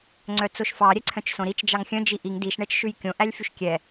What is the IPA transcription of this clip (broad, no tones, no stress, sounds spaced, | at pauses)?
ŋ͡ǀ œ t͡s o ʃ f ɑ ɾʲ ɛ ǀʰ œ̃ t͡ʃ s õ ɾ i t͡ʃ d͡ʒ ɑ ŋ xʲ œ̃ d͡ʒ i ʔ i ŋ d i ʃ ɳ ɛ t͡ʃ ʃ ʉ j kʲ õ ʔ æ lʲ f y ʃ kʲ ɛ